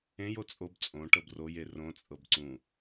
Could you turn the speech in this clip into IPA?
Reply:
ẽjo t͡sʼob t͡sʼõʈɤb roje rõt͡sʼɤb ǀũ

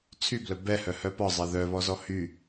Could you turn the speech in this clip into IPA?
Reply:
t͡sʰyblœ bɛhœhœ pɒzˤɛ ðœβɔzɔ hy

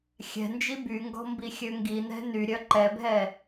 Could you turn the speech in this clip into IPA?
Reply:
xʲɛ̤nd͡ʒi byŋɡɔ̤mbixʲø ŋɡinɛ̤ nyɾʲœ ǃɛbʱɛ

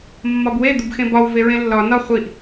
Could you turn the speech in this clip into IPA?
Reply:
mːɒbwe d̪ubxẽbɒw veɹẽlːɒ nɒ χʷiʔ

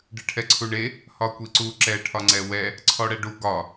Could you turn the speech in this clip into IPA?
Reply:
ɖɨʈʰɛǀʰuɳe | hɒkʷiǀu ǁɛ ʈʰɒŋ͡ǀɛwɛ | ǀʰɔɽɛɖu ɡɒ

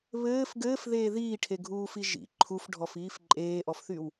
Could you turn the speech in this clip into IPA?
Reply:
βɘːf ɡɘːfðeː ðiːʈʰeɡʱuːfi ʒḭ ǃʰufɖʱɔfiːf ǃʼeːʔɔfθyw

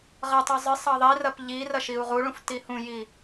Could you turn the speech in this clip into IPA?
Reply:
ʁɐtˤu zˤɨ sˤɑðˤirɐp ʎi rɐʃiu̯ʁuɭũf tihũji

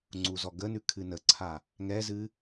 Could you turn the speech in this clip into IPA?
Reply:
ŋ͡ǀuzɔɡənʉ kʰɨnəǀʰa | ŋɛzɨ

